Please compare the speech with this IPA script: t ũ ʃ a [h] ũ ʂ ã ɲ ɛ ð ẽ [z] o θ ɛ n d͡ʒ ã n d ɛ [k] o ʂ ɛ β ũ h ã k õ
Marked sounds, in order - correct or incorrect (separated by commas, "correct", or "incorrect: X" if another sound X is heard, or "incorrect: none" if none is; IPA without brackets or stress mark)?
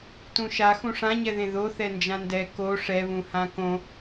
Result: incorrect: x, incorrect: ð, correct